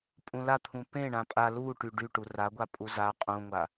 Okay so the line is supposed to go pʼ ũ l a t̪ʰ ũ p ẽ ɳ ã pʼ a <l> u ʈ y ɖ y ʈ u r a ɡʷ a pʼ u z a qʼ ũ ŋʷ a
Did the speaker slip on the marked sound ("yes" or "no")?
no